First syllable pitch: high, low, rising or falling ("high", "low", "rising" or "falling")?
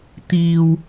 low